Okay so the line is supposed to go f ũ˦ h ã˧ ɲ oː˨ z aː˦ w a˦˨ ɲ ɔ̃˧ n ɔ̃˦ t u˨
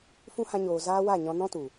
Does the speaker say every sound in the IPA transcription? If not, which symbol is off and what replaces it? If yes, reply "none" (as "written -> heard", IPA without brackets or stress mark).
none